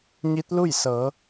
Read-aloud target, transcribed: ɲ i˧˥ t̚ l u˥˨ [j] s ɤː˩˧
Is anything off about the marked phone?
no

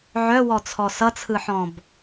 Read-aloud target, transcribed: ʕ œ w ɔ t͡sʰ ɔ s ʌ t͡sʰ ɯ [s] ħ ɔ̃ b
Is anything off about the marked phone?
yes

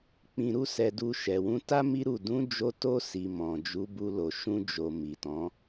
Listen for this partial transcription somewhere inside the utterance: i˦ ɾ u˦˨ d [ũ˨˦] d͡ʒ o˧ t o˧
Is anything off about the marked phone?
no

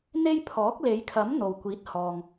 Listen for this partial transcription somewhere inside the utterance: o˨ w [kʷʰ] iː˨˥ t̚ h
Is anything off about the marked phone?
yes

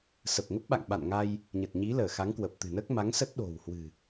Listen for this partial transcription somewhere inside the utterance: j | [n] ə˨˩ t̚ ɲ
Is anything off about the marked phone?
yes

